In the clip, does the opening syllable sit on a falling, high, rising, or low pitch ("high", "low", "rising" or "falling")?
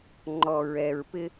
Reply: low